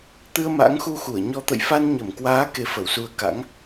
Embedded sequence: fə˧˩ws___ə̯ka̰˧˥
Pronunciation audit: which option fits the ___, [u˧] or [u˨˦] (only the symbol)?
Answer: u˨˦